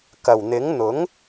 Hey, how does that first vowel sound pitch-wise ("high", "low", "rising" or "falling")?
low